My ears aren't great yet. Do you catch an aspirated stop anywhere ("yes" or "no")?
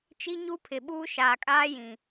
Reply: yes